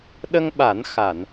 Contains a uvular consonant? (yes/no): no